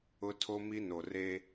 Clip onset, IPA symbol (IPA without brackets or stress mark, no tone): ʊ